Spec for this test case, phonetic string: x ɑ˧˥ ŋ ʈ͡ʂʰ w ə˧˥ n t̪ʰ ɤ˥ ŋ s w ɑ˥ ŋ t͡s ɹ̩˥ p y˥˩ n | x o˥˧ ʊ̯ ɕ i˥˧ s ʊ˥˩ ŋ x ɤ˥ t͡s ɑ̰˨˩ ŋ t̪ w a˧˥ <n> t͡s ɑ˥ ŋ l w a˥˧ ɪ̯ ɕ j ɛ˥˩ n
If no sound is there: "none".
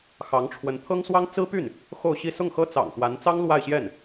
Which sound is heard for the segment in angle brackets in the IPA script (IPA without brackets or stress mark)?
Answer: n